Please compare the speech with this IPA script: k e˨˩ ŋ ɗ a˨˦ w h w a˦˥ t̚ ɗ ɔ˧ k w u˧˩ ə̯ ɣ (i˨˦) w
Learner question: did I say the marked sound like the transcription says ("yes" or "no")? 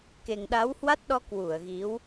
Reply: yes